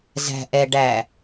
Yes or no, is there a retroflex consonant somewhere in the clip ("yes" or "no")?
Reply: yes